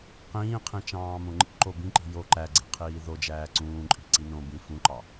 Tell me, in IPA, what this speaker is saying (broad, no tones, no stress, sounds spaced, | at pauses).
q ĩː qʰ ĩ t͡ʃ ɑ̃ː m õ ŋ͡ǃ ḭ ǃ o b ĩ ǃ i̤ j o ǃ æ ɡ͡ǀ e̤ qʰ iː ð o d͡ʒ æː ǀ ũː ǃʼ i̤ ǀ i n õ b ĩ f ũ ǃ ɑ